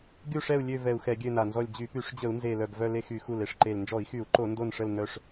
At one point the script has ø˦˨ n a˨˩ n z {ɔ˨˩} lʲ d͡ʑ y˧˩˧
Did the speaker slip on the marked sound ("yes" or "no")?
yes